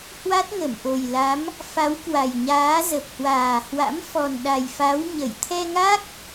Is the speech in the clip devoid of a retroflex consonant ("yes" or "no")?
yes